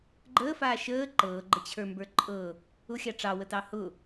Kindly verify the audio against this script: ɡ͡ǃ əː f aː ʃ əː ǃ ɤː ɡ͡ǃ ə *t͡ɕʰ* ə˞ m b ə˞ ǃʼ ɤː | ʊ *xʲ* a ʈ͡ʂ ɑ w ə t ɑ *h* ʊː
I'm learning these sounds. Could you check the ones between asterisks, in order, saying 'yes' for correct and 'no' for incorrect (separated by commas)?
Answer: yes, yes, yes